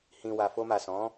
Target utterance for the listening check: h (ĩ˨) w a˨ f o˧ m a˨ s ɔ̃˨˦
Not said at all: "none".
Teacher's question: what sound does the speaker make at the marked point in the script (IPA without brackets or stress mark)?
ĩ˨